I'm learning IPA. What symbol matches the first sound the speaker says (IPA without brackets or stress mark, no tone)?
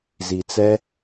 z